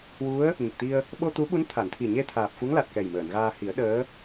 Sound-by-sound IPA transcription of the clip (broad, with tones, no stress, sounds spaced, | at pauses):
w u˧˥ ə̯ | ɲ ə˨˩ k̚ t̪ i˧ ə̯ | ɓ o˧ t̪ u˧˥ ɓ u˧˥ n t̪ʰ a˨˩˨ n t̪ʰ i˨˩ ɲ e˧ t̪ʰ aː˨˩ p̚ f u˧˥ ŋ l a˨˩ t̚ k ɛ˨˩ j m əː˨˩˨ n ɣ aː˧ h i˨˩˦ ə̯ ɗ əː˧˥